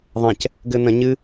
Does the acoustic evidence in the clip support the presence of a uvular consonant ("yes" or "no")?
no